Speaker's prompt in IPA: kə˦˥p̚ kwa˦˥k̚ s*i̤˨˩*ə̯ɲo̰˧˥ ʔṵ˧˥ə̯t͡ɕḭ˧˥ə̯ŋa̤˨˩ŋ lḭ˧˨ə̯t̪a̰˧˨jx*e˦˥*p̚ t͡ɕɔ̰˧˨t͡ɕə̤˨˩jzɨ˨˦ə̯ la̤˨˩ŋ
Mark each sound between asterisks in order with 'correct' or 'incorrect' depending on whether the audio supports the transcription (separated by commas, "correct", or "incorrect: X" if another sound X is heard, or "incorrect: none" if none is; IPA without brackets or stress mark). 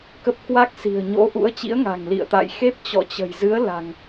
correct, correct